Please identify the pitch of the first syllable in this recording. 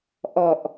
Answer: low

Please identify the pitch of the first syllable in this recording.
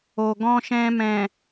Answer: low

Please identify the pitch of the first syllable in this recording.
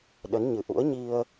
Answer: rising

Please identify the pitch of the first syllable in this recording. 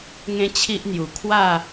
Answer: high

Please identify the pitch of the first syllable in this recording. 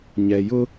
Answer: low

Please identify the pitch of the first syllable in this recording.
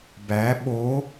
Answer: rising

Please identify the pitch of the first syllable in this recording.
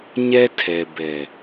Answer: high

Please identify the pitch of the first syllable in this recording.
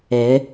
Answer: rising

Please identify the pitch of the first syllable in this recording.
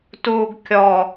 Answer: low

